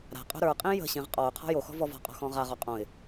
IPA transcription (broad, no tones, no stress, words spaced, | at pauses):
ɾa̤qʼo̤ ɾə˞qʼĩ jə̤ɕĩʁ qʼɔʊ̯ qʰɔ̤joxɔ̤ vɔvɔ̤qʼɔ̤ xɔ̃ʁaʁɔ qʼõɪ̯